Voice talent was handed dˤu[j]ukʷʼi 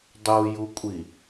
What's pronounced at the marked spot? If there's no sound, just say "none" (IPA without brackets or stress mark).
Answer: j